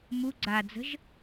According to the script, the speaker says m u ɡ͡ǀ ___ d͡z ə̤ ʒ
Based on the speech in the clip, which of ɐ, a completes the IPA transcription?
a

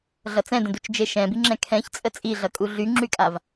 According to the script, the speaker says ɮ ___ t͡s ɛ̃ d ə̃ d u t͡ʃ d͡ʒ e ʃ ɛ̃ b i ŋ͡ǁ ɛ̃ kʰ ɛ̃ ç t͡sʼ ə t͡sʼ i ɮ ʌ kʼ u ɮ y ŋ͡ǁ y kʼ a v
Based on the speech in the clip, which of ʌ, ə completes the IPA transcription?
ʌ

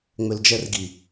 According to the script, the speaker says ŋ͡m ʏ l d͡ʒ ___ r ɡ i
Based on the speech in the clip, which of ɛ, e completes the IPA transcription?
ɛ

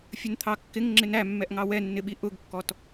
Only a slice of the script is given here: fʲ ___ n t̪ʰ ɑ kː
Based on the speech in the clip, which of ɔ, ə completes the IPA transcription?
ə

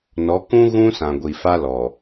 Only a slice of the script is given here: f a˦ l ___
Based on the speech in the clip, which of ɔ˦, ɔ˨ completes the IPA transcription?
ɔ˨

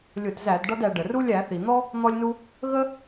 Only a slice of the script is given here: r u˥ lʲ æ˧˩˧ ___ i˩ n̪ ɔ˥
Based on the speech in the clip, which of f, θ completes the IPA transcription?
θ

